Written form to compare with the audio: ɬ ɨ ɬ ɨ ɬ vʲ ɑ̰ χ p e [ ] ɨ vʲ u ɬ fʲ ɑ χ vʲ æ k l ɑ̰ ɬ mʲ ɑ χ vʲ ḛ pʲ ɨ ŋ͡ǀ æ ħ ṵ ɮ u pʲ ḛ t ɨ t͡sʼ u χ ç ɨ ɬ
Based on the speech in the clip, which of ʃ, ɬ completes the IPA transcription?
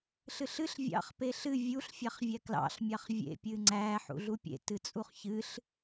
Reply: ɬ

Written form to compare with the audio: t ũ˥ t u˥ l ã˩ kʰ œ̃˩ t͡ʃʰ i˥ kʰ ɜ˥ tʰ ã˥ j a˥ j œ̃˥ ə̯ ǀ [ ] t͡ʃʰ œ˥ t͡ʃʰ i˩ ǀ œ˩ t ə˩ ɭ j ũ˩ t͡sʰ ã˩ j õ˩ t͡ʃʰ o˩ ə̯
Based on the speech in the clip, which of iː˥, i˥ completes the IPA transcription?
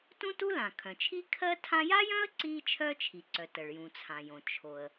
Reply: iː˥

